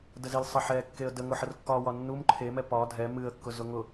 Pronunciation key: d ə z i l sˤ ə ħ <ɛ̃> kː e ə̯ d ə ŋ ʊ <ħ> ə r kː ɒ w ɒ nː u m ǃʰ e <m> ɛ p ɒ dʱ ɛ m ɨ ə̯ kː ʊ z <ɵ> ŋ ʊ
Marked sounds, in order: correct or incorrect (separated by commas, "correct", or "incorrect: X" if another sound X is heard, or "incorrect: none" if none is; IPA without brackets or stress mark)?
incorrect: ɛ, correct, correct, incorrect: ʊ